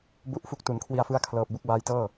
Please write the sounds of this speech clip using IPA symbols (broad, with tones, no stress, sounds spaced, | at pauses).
b u˦˥ ʔ f u˦˥ k̚ t u˩˦ n kʰ w i˧ a̯ f ɯ˦˥ a̯ kʰ l ɤː˨˩ p̚ b u˦˥ k̚ b aː˦˥ j t ɤː˥˩